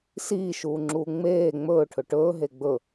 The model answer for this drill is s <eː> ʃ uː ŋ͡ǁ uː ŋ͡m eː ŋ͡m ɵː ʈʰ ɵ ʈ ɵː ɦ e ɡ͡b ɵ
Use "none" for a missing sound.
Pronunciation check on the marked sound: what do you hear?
iː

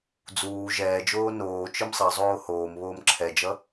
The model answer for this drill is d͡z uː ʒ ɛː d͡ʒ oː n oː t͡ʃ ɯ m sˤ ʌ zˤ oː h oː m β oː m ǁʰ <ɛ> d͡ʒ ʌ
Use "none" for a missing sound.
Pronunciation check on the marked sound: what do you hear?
ɛ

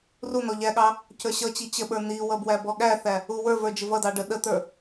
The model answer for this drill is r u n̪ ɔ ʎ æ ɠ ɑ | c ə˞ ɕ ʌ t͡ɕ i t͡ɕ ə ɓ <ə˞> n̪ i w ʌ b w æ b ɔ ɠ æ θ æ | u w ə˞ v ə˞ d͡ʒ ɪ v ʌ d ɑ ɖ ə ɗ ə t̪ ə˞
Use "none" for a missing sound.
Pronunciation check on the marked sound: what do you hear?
ə˞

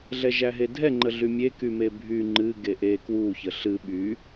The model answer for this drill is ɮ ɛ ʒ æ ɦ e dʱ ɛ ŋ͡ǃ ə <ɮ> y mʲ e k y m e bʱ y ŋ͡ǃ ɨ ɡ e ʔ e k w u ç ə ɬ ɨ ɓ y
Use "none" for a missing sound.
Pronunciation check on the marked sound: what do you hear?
ɮ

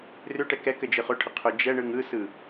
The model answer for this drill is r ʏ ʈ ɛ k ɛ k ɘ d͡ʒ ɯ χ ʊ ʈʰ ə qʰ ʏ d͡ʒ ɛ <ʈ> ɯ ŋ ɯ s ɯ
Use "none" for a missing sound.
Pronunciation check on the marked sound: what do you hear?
ɳ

